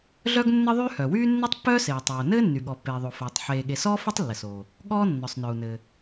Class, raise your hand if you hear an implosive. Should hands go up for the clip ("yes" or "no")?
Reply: yes